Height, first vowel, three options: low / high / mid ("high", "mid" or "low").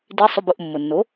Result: high